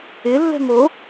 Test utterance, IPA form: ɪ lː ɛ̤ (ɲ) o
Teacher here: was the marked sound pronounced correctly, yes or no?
no